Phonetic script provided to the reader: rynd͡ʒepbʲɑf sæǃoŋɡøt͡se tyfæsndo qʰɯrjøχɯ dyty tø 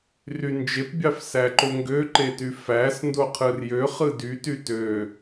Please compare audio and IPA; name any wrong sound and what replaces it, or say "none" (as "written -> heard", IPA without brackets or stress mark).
t͡s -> ǃ